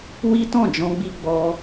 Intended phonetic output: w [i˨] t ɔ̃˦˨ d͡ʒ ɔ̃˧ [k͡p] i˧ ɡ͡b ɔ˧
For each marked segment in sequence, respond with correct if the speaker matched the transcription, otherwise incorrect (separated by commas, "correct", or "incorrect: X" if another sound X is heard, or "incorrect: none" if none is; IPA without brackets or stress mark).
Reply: incorrect: i˦, incorrect: ɡ͡b